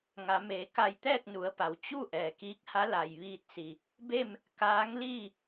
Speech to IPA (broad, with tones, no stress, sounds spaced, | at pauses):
ŋ a˩˧ m eː˩ k a˧˩ j t̪ ɛː˥˨ k̚ n u˩˧ ə̯ p a˩˧ w t͡ɕ u˥˨ ʔ ɛː˩ k iː˧˥ k̚ h a˧˥ l a˩ j ʋ iː˧ t̚ s i˩ | b e˥˨ m | k aː˧˥ ŋ l iː˥˨